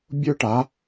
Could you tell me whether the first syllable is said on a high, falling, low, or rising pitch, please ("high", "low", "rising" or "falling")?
high